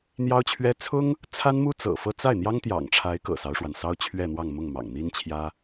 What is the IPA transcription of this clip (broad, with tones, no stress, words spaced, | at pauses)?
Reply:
n̪jɑ˥ʊ̯t͡ɕʰɥɛ˥ t͡sʰʊ˥ŋ | t͡sʰa˥nmu˥ t͡sɤ̰˨˩fɤ˥˧ t͡sa˥˩ɪ̯n̪jɑ˥ŋt̪jɑ̰˨˩ŋʈ͡ʂʰa˧˥ɪ̯ kɤ̰˨˩sɑ˦ʊ̯ʂwa˩nsɑ˥ʊ̯ t͡ɕʰɥɛ˥˧n̪wɑ˥˧ŋmʊ˥˩ŋ mɑ̰˨˩ŋn̪i˥nt͡ɕʰjä˥